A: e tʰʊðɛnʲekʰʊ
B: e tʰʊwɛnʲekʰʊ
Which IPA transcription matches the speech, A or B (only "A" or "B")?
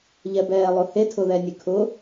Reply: A